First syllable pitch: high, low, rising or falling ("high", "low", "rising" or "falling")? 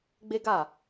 high